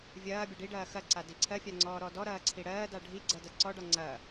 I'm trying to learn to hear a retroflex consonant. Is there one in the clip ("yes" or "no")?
yes